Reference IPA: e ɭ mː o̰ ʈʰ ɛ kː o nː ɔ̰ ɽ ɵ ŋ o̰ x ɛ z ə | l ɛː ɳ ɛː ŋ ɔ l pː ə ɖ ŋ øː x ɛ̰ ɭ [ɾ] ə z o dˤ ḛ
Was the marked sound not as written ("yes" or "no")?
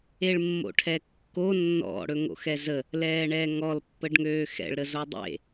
no